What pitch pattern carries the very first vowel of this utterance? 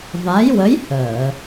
rising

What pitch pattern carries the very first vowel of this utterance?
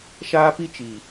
high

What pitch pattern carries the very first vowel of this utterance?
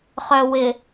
low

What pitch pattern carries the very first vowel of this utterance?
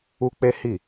high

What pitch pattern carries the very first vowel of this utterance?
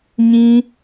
high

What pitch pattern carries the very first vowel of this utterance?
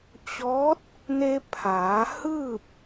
rising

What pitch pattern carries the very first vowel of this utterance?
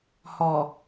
low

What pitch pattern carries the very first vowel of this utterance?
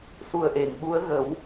low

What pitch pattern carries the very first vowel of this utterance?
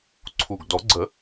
low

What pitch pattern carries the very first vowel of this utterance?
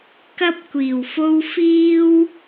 high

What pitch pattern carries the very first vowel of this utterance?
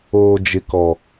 low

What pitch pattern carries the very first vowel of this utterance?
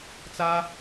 high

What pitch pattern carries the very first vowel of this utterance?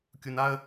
low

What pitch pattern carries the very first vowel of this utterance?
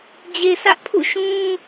low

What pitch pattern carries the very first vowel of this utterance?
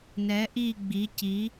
rising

